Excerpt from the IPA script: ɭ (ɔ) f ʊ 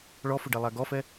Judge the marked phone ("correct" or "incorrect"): correct